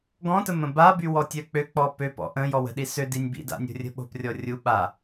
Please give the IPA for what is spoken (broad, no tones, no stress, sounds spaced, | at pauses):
ɡ ɔ̃ t ə m ə̃ b a b y w ɔ tʲ œ k͡p ø k͡p ɔ p ø p ɔ̰ ʔ ə̃ j ɔ w ə̤ ɗ i s ø d i nʲ b ḭ d a̰ nʲ o̤ rʲ ə̤ ɓ o̤ p rʲ ɔ rʲ u ɓ a